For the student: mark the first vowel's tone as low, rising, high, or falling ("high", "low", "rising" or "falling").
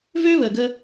high